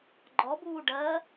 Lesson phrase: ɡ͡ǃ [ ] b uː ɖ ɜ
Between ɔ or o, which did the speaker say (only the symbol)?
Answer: ɔ